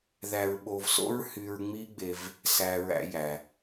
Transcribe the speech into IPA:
ð æ˧ ɹ ɓ o˧ v s o̰˥ ɹ h y˧ ɹ ŋ͡m i˥ ɡ͡b e˧ v | s æ˧ ɹ æ̰˧ j æ˩

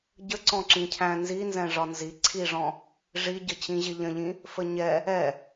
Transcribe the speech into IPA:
ɟ ə ǀ ɔ̃ ǁ ĩ cʰ æ̃ n z i n z ɛ̃ ʐ ɒ n z i ǀʰ i ʐ ɔ̃ | ʐ i ɟ ə t͡ɕ ĩ ʑ ɪ ʎ ə̃ ʎ ĩ | f ə ɲ ɛ | ɛ

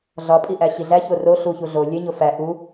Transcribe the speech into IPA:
ɮ ɒ pʼ i ʔ æ ɕ i ɮ æ ç o r o ɬ u ç u ɮ o lʲ e ɲ o f æ ʔ u

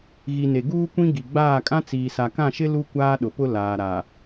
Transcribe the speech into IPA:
ɣ i˨ n e˨ ɡ uː˦ kʷ ĩ˦ ɡ i˨ ɡ͡b aː˦˨ kʼ ã˦ t͡s iː˨ s a˨ k ã˦˨ ʃ ɪ˦ l u˦ kʷ aː˦ ɗ ʊ˨ p ʊ˦ l aː˨ ɾ a˨

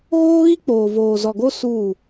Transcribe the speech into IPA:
ɣ oː˦ ɣ i˦ k͡p oː˨ v oː˨ z ɔ˨ ɡ o˦ s uː˦˨

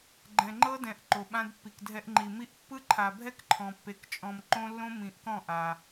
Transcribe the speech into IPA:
ɡ͡ǃ ɛ̃˨ ŋ͡ǃ ɤ˦ d ɛ̃˨ ʔ ǃ o˨ ɓ ã˦ d pː i˨ k dʱ ɛ˦ ʔ ŋ͡ǃ i˨ m i˦ ʔ pː ɯ˦ ǃʰ a˨ bʱ ɛ˦ k ǃʰ ɔ̃˨ pː e˨ k t͡ʃʼ ɔ̃˨ m ǃ õ˦ lː õ˦ m ĩ˨ ʔ k ɔ̃˦˨ ʔ a˨

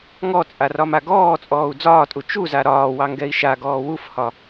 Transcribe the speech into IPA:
ŋ ɔ t͡sʼ a r ɒ m a ɡ ɔː t͡sʼ ɔː u̯ d͡z ɒː tʼ u t͡ʃ u z a ɾ ɒː w ɑ ŋ ɡ ɛ i̯ ʃ a ɡ ɔː w u f h ɒ

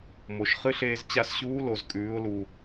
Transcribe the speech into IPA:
m o˩ ʃ χ ɨ˥ ɬ eː˧ z t͡ɕ a˧ s ɕ uː˧˥ l o˩ z kʼ ʉː˩˧ ʊ̯ l u˩

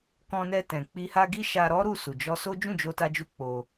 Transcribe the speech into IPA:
k ɔ̃˧ n ɛ˧ t ɛ̃˨ k͡p i˧ h a˦ ɡ i˦ ʃ a˧ ɾ ɔ˦ ɾ u˦˨ s u˨ d͡ʒ ɔ˧ s o˦ d͡ʒ ũ˦˨ d͡ʒ o˧ t a˧ d͡ʒ u˧ k͡p o˧

